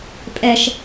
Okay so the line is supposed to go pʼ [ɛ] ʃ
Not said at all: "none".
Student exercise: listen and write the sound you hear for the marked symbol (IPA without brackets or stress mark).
ɛ